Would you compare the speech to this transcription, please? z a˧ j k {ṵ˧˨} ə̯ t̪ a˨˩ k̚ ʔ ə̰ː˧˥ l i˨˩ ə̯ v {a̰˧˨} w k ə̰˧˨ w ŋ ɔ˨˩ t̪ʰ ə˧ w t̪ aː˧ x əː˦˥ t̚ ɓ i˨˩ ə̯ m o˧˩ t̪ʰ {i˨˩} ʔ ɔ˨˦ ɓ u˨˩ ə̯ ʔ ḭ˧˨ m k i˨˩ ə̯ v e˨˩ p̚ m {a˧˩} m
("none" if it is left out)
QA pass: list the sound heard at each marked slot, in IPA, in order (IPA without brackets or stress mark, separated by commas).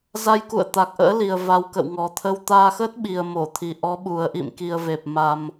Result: ṵ˧˨, a˨˩, i˨˩, a˨˩